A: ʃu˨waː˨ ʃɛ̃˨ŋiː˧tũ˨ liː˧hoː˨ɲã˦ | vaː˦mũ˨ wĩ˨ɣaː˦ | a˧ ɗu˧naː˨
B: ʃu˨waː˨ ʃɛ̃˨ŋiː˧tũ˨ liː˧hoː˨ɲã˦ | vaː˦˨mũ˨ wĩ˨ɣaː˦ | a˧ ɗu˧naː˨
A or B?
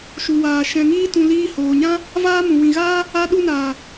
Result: A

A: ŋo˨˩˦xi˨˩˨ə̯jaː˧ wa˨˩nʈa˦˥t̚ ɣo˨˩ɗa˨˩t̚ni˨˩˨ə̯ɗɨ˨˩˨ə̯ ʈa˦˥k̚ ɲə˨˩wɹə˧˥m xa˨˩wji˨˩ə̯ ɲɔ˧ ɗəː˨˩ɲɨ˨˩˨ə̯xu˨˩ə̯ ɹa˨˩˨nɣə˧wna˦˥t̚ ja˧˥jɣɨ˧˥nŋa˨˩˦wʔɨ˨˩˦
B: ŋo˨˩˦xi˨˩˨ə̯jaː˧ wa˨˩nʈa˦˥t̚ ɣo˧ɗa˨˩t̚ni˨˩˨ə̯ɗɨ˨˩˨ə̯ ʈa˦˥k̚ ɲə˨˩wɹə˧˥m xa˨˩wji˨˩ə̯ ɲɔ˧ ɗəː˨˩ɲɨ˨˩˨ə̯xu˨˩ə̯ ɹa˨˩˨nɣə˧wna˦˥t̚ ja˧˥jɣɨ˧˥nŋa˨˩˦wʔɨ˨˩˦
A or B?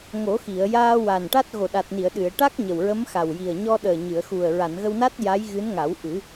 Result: A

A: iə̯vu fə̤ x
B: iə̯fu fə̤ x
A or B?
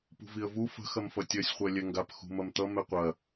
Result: A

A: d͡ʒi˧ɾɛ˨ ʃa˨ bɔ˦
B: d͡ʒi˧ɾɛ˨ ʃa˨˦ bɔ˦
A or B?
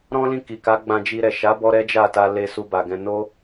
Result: B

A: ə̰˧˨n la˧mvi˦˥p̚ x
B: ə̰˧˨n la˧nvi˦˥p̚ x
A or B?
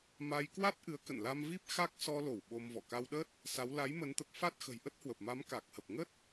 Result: A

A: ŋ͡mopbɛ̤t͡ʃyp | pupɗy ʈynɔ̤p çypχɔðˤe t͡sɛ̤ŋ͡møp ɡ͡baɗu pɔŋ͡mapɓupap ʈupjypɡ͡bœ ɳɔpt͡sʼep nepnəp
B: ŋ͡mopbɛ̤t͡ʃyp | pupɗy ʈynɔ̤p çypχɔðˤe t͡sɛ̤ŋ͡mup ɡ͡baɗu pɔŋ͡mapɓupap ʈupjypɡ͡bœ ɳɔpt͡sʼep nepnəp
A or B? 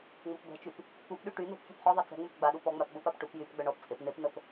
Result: A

